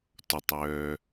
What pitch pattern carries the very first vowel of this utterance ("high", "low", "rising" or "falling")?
low